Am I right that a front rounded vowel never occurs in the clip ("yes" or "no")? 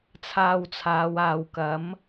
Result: yes